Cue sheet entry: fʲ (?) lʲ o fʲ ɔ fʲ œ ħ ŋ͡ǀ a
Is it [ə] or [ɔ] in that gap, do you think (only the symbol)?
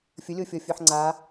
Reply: ə